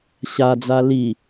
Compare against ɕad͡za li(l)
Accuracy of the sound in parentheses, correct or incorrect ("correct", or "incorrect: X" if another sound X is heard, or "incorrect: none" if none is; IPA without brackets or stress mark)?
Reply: incorrect: none